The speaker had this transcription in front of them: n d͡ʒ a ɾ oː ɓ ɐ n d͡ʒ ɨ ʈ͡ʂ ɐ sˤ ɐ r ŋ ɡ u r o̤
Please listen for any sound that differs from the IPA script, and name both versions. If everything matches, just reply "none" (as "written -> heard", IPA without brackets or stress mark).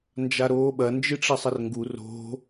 none